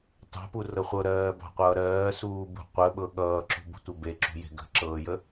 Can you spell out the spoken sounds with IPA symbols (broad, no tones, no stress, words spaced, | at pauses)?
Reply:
tɑ̤purɤ χʷɤɾɜːbɑ̤qʷʌː ɾɜːsuːbṳ qʷəɓɤ ɠʌːǁṳbṳtʷə beǁṳje̤ ɡə̤ǁɤːjə